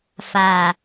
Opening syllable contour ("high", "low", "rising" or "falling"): low